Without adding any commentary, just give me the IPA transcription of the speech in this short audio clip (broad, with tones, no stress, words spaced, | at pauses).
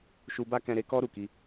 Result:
ʃu˧ba˦kɛ̃˧ɾe˧ kɔ˦ɾu˦˨ki˧